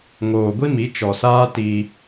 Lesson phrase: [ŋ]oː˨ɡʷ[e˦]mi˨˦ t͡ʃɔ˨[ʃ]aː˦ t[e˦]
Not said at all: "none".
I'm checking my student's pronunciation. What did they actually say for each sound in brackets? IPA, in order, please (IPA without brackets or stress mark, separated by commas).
ŋ, i˦, s, i˦